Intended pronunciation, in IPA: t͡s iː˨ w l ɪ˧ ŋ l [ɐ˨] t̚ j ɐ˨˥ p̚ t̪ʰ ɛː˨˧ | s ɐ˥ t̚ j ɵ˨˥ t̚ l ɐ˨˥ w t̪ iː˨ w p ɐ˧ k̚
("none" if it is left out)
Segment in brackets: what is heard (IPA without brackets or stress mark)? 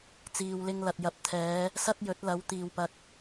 ɐ˨